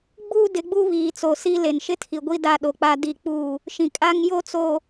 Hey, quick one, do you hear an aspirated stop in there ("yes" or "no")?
yes